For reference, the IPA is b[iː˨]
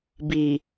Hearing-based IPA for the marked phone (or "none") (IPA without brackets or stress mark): iː˨